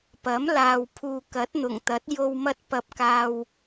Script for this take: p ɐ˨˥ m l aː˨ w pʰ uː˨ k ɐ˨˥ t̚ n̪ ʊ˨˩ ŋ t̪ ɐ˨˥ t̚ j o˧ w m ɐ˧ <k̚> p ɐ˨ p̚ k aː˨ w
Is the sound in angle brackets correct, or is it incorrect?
incorrect